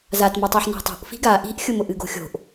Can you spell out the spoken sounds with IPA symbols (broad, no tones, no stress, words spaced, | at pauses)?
zatmotˤoħ na̤tˤo̤ʔ fi̤ɡa ʔi̤ʔxʲʊmʊʔ ɨɡo̤xʲo̤ʔ